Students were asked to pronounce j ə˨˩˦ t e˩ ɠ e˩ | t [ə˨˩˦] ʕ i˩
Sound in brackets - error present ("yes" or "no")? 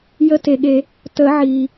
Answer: no